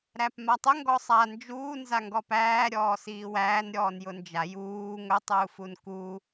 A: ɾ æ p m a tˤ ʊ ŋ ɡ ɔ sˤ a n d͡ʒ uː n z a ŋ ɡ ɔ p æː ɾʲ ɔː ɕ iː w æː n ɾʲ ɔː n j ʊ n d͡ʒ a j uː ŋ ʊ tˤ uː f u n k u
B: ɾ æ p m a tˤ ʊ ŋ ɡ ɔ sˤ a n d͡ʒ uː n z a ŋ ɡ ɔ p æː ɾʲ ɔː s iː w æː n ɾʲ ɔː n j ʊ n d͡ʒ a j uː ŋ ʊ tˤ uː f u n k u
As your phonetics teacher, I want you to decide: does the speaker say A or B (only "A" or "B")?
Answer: B